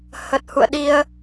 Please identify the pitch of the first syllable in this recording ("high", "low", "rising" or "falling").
low